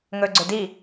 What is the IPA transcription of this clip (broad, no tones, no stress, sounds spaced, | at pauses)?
ŋ ɵ ɡ͡ǀ ø d i